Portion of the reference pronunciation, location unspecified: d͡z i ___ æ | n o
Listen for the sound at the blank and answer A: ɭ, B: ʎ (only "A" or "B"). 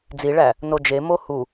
A